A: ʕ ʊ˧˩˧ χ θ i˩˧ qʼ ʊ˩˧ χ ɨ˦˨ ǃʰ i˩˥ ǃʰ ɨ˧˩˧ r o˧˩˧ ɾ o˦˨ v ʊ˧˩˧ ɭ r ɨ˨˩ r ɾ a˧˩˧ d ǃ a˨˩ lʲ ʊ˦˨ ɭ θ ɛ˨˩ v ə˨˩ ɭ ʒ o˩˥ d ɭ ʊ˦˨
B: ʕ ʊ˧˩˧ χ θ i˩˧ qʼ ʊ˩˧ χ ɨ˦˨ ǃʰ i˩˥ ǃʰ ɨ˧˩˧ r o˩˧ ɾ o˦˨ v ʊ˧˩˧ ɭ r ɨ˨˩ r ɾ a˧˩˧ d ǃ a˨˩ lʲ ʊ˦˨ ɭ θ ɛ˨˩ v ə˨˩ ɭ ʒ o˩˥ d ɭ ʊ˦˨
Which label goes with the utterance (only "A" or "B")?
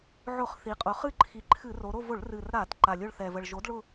B